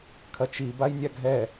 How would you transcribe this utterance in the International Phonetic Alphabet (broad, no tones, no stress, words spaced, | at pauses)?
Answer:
kʰɐt͡ʃi bajnʲaɡʱɛ